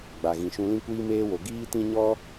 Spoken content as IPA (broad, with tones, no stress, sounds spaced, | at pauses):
ɡ͡b a˨ ɣ ĩ˨ ʃ ũ˧ l ĩ˦ kʷ iː˦ m eː˦ w o˧ ɡ iː˦ t ĩ˦ ɲ ɔ˦